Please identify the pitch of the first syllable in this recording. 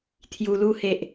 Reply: low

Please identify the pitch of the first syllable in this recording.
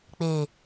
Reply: low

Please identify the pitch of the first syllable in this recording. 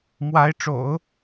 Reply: rising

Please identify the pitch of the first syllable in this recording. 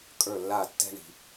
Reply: falling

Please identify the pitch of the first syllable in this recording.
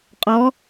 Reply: rising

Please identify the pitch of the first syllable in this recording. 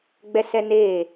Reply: high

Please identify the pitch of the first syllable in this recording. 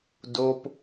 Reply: high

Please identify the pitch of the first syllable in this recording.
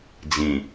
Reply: low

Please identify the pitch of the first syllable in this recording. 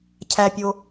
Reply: low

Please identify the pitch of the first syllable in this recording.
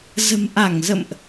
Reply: low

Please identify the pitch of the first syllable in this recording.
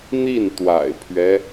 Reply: falling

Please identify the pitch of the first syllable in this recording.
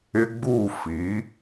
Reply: high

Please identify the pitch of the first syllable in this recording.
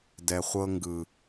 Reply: low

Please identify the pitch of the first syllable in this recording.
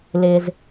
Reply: low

